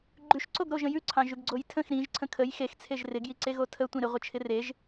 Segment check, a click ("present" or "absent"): present